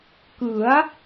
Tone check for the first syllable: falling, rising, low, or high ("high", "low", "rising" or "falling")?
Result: rising